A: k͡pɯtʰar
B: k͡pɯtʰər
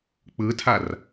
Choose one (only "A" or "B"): A